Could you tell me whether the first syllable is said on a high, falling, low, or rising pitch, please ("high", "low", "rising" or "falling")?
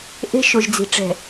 high